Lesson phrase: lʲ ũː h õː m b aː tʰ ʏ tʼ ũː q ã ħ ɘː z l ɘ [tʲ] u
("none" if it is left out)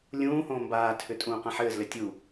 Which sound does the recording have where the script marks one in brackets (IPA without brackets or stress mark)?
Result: tʲ